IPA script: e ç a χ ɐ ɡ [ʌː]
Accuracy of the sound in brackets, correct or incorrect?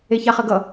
incorrect: ʌ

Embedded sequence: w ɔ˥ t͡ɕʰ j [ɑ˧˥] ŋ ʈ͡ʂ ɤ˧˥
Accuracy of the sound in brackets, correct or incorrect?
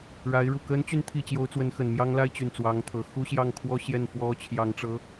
correct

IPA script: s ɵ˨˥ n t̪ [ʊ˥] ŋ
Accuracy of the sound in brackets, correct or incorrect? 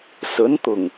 incorrect: ʊ˨˩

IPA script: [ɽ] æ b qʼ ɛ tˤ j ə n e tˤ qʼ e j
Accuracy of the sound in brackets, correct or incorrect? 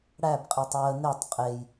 correct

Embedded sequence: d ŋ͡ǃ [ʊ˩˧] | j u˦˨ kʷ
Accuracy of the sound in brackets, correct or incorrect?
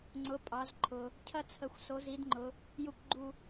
correct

